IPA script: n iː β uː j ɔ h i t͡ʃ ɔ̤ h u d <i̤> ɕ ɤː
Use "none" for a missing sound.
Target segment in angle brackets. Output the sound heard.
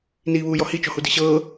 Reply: i̤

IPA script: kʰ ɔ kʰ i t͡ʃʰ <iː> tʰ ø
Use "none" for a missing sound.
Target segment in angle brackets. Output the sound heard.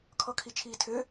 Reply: iː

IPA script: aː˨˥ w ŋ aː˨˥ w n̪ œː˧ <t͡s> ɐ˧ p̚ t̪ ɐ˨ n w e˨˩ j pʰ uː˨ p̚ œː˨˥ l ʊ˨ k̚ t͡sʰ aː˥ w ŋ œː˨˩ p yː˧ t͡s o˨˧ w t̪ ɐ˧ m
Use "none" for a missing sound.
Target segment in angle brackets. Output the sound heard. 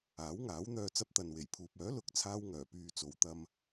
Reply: t͡s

